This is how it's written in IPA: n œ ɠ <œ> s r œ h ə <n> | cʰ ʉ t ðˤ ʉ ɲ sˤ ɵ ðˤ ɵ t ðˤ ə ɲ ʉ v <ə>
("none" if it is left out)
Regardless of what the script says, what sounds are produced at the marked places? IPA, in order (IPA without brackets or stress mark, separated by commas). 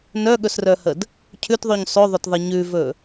ɵ, d, ɵ